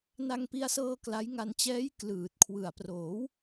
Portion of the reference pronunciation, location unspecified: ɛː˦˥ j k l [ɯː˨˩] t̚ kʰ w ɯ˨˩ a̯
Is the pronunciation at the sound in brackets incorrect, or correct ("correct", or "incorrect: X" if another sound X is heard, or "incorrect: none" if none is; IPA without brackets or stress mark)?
correct